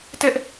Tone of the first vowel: high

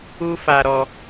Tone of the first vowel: high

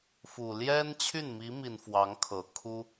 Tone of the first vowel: low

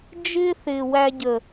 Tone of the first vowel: high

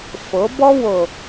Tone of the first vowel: rising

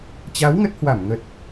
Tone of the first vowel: rising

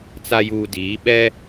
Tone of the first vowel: low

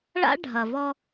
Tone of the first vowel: high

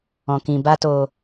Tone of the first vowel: low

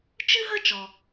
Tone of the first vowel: high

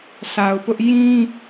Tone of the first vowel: low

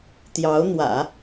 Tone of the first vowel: rising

